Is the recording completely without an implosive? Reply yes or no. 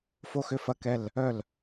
yes